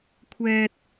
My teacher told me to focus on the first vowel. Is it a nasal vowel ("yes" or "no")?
no